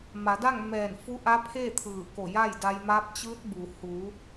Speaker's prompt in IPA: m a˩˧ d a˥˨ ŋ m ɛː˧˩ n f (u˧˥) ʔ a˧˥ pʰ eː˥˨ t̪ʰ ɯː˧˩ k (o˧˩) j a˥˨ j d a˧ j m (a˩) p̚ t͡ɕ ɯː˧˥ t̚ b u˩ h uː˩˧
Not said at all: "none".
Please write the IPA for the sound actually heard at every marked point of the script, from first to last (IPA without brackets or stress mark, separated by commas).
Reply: u˧˥, o˧˩, a˧˥